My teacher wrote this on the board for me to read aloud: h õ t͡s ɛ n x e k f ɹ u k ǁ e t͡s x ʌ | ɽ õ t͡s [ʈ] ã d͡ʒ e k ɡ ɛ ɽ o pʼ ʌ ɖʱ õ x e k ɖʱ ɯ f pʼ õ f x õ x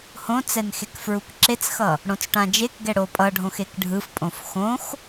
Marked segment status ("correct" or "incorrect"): correct